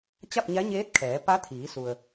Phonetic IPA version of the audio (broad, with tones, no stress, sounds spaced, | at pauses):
t͡ɕ a˥˨ p̚ ɲ a˧˥ ɲ eː˧˥ t̚ kʰ ɛː˩˧ p a˧˥ t̪ʰ iː˩˧ s u˩ ə̯